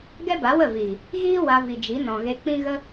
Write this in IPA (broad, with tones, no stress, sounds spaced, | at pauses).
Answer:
ɡ ɛ˦ b a˨˦ w ə˦˨ v iː˨ | ɣ iː˦ w a˧ v i˨ d͡ʒ i˨˦ n ɔ̃˨ ɣ e˧ k͡p ĩ˦ ɣ ə˦